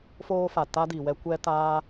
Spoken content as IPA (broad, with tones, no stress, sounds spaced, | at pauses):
f oː˦ f a˨ t a˦ d i˨ w ɛ˦ kʷ ɛ˦ t aː˦